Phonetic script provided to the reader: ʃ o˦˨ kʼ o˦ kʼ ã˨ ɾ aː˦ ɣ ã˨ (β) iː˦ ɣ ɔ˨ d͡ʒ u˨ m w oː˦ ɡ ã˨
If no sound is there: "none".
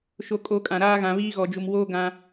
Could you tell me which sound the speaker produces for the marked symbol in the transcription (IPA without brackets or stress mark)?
β